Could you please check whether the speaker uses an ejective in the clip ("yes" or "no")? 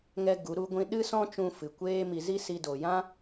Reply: no